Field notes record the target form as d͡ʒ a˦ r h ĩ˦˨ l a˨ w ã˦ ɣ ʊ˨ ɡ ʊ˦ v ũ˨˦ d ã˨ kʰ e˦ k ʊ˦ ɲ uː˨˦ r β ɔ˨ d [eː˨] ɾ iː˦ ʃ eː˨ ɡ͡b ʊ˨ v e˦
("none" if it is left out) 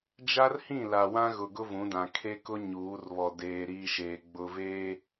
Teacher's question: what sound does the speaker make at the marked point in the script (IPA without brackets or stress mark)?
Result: eː˨